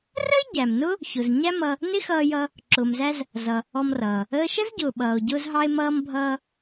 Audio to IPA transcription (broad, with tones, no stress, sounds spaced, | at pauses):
r ə˥ e̯ ɟ æ˩ m n ʊ˥ | ç ʊ˩ z ɲ æ˥ m ʌ˧ | n ɪ˥ x ʌː˧ j ʌ˧ | ǁ ʊː˩ m z æ˧ z | z ʌ˩ | ɔ˧ m r ʌː˩ | əː˧ ʃ ə˥ z ɟ ʊː˩ ɓ ʌː˩ o̯ ɟ ʊː˧ z ɦ ɑ˧ e̯ m ʌː˧ m bʱ ʌː˧